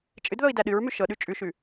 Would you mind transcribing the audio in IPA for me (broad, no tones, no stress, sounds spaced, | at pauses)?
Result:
t͡ʃʼ ɨ d ð ɤ i̯ d æ ɗ ɨ ɹ m ʉ ʃ ɤ ɗ ʉ t͡ʃʼ ʉ ʃ ʉ